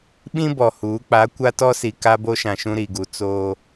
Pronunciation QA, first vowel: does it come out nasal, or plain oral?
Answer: nasal